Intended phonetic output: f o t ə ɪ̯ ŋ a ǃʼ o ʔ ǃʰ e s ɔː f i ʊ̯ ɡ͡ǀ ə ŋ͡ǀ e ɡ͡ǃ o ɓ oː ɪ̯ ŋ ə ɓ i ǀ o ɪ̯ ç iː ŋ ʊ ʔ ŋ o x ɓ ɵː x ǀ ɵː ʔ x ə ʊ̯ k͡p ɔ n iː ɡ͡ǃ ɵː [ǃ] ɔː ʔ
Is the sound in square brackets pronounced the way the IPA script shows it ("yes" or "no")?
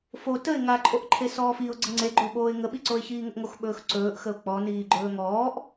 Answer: no